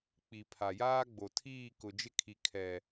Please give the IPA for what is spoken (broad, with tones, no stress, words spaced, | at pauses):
k͡pi˨pʰa˨ jaː˦ɡ͡bo˨tʰiː˦˨ kʊ˨d͡ʒɪ˦kʰi˨ kʰɛ˨